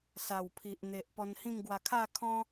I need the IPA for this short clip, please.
s a˨˩ w pʰ i˨ ʔ n̪ e˨ ʔ p ɔ˧ n h ĩ˥˧ ŋ ɡ w a˧ kʰ a˥˧ kʰ ɔ̃˦

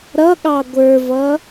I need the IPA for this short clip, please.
ɾ ʌ ɠ ɑ ɡʷ ə˞ v ʌ

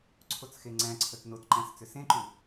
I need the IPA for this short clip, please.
ǀʰ o t͡s x e ŋ͡ǀ æ̃ ǀʰ ə t n o t ǃ æ̃ s t͡s ʏ s ẽ ǃ ʉ

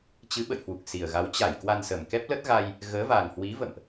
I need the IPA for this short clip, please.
t͡ɕ ɨ˨˦ ɓ ə̰˧˨ j h w u˨˩ k̚ s i˨˩ ə̯ ɣ a˨˦ w t͡ɕ a˧˩ j k w a˧ n s ə˨˩ m k ɛ˦˥ p̚ l ə˦˥ t̚ ɣ a˧ j | ɣ əː˨˦ v a˨˩ ŋ h w i˨˦ v ə̰˧˨ m ʔ

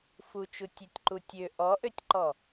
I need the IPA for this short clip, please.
f u t͡ʃ u tʲ ø tʲ ǃ u tʲ ø ʔ ɔ ʔ ø tʲ ǃ ɔ

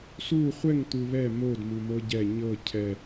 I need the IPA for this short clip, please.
s u χʷ ɛ ŋ t̪ u β ɛ m o d m u m ɤ ɟ ɛ ɲ ɤ cʰ ɛ

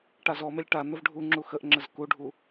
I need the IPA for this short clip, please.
ʈ a z ɔ m e lʲ ʈ a n̪ ə v ɖʱ u ŋ͡ǁ u x ə ʔ ŋ͡ǁ ə z k u ɖʱ u

